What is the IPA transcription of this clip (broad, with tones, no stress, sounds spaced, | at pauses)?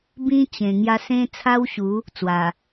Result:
b ĩ˦ t͡ɕ ẽ˨˩ ŋ j a˦ s ẽ˦ t͡sʰ a˦ w ɕ u˨˦ | t͡s w a˨˩